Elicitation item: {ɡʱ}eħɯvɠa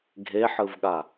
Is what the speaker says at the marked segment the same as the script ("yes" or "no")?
yes